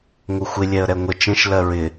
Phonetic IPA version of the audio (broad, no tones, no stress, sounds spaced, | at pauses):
ŋ ʊ xʷ ɪ lʲ ɛ ə̯ ɾ ɛ ŋʷ ə t͡ʃ ə̃ ʃ l ɜ ɹ ɪ